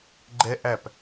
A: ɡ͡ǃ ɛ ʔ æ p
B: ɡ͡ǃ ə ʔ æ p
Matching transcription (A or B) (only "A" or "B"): A